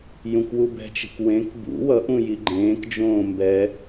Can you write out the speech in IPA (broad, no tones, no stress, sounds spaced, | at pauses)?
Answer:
j ũ k w u b ɛ̤ t͡ʃ e̤ k w ẽ k b ṵ w ʌ ʔ ũ j i ɡ͡ǃ ẽː k d͡ʒ õː m b ɛ